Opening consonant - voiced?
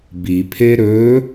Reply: yes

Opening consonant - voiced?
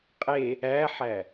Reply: no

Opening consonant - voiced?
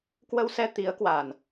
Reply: no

